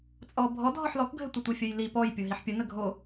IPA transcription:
t͡sʼ ɔ bʱ ɔ dʱ ɔ ħ l ɔ k ɡʱ ɘ tʷ ə tʷ i fʲ ə j l i p ɔ j pʲ o ɦ i ħ pʲ ə n ə ɡʱ o

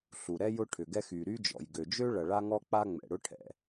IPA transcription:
ɬ u˩ ɾ ɛ˥ j ʊ˥ ʈʰ ʏ˩ ɡ ɛ˥ x y˩ ɾ y˥ d͡ʒ ɔ̰˩ j ɡ ø˩ d͡ʒ ø˥ ɭ ɐ˩ ɭ a˥ ŋ ɔ˥ k͡p a˥ ŋ͡m ɛ̰˩ ɽ ʊ˥ ʈʰ ɛ̰˩

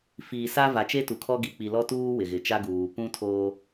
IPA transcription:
f iː˨ s a˦ v a˨ t͡ʃ e˦ t u˨ kʰ ɔ˦ ɡ i˨ k͡p i˨ l ɔ˦ t uː˦ w ɪ˨ ɣ ɪ˨ t͡ʃ a˦ ɡ uː˨ p ũ˦ tʰ oː˦

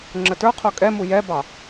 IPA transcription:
ŋ͡ǁ ə t ə˞ qʰ o kʼ ɛ m u j ɛ b ɑ

